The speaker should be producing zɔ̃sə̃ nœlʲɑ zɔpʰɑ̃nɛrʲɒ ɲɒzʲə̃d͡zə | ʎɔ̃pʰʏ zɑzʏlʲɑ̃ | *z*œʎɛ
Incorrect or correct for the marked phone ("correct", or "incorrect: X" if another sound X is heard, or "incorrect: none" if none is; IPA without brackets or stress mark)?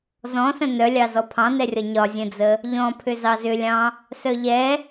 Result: incorrect: s